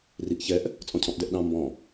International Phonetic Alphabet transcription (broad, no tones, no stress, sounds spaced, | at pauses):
r i ʔ ç ɛ ʔ | t͡sʼ ɔ̃ cʰ ɔ̃ ʔ d ɛ ʔ ɗ ɑ̃ m b ɔ̃